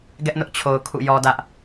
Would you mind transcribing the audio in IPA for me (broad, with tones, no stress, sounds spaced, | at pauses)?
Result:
ɡ ɛ˦ ʔ n ʊ˦ ʔ t͡ɕʰ o˨ ʊ̯ kʰ ṵ˦˨ j ɔ˦ d ä˦ ʔ